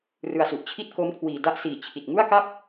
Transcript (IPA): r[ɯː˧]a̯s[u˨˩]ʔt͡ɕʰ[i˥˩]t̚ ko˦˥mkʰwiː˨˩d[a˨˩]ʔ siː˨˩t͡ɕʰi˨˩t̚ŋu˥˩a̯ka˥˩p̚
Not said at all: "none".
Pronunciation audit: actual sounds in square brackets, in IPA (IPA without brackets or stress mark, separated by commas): ɯ˧, u˨˩, i˥˩, a˥˩